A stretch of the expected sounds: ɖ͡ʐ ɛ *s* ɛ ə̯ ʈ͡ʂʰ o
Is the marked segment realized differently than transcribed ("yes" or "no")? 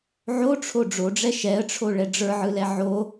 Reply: yes